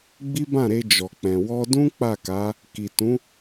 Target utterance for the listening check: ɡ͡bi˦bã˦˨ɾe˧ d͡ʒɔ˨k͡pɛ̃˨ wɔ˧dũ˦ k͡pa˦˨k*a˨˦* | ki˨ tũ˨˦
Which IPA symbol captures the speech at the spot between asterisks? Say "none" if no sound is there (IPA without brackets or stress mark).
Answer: a˨˦